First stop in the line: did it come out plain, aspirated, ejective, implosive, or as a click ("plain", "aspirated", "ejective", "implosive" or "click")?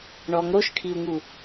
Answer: aspirated